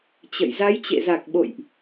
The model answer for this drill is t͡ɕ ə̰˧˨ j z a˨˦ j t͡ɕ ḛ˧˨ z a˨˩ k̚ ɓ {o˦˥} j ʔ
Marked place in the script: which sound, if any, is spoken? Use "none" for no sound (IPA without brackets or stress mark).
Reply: o̰˧˨